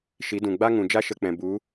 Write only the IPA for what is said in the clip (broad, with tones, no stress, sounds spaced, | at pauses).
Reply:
ʃ i˨˦ d ũ˨ ɡ͡b a˦ ŋ ũ˨ d͡ʒ a˦ ʃ ə˧ k͡p ɛ̃˨ b u˨˦